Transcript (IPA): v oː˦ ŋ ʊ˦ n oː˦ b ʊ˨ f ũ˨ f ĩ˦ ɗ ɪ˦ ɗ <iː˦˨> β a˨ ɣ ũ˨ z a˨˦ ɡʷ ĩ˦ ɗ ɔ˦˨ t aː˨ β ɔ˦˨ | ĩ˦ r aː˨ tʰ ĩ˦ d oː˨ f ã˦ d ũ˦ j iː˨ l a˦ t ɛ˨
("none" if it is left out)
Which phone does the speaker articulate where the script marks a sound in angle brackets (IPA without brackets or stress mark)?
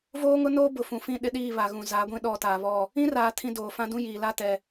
iː˦˨